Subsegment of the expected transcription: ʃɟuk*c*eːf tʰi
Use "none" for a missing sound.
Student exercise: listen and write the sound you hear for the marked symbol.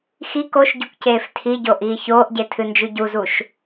c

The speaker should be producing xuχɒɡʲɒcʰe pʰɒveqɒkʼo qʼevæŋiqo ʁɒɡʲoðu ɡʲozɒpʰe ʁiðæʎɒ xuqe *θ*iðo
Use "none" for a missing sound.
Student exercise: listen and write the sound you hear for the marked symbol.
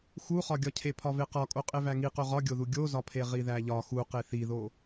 θ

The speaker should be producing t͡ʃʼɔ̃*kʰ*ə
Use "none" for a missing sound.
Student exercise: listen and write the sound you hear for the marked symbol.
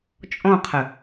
qʰ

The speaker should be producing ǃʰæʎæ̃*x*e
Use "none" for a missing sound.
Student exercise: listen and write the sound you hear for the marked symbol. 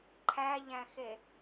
x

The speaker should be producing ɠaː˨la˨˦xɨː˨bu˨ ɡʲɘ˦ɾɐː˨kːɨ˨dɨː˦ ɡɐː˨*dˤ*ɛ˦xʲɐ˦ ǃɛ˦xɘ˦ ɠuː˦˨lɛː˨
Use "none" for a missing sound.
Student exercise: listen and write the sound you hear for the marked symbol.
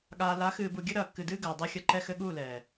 dˤ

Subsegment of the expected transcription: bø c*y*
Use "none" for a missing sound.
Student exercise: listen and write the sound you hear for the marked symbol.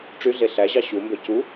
u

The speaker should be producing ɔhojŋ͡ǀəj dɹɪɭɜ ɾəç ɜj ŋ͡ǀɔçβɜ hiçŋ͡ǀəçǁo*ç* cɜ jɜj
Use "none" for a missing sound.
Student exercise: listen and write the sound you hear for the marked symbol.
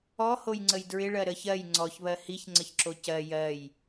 none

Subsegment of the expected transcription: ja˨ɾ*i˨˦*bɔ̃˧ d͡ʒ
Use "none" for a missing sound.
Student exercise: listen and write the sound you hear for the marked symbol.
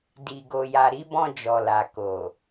i˨˦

